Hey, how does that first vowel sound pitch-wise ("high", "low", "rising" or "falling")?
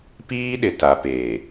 high